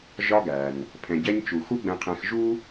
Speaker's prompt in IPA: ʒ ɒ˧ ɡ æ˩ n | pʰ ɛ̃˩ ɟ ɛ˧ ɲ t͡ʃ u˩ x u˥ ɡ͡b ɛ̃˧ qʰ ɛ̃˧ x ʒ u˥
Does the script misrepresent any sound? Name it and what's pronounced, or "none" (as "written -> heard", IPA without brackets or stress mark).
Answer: none